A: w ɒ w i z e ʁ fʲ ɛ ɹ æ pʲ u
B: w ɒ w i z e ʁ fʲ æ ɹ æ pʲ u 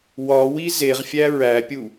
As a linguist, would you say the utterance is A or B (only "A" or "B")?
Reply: B